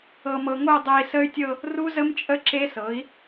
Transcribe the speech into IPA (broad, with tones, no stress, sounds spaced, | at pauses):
ɤ˧ m ɤ˧ ŋ o˥˧ dˤ ɛ˧ i̯ s ə˦˥ y̯ tʲ ɤ˥˧ | r u˦˥ z ə˦˥ m t͡ʃʼ ə˦˥ ǁ e˦˥ s ɤ˩˥ i̯